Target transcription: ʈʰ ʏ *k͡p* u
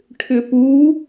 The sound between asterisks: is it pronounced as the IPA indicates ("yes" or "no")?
no